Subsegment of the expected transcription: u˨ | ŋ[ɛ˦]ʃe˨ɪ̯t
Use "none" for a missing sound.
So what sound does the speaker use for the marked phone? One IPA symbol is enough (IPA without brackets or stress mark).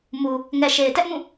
ɛ˨